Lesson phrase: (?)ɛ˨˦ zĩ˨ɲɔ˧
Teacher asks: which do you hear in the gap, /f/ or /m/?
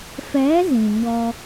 f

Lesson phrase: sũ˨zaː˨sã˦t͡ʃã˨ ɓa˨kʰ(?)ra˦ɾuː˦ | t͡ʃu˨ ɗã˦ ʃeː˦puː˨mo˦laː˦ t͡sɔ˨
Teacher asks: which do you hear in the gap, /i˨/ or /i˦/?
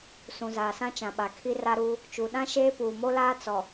i˦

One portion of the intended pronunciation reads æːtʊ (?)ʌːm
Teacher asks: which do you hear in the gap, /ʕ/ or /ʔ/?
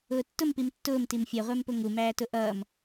ʔ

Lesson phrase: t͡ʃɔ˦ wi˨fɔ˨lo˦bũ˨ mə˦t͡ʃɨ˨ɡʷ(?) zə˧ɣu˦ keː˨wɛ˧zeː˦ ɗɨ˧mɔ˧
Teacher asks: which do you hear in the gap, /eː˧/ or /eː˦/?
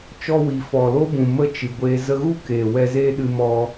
eː˧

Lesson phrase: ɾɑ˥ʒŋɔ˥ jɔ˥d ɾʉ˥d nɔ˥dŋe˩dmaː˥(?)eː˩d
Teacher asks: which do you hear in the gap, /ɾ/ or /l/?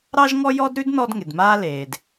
l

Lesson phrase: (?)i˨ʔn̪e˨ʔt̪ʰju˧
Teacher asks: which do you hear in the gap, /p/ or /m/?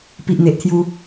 p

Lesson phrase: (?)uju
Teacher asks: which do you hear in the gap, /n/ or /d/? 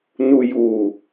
n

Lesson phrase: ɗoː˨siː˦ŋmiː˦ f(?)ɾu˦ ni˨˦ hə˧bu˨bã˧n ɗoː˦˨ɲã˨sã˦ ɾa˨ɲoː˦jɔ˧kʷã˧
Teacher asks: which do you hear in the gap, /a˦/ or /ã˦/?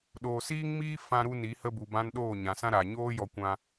ã˦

